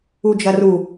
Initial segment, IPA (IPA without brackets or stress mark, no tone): u